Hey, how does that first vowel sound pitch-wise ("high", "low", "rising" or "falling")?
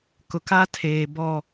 low